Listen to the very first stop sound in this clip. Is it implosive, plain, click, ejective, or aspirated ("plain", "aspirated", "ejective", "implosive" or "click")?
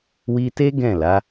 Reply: plain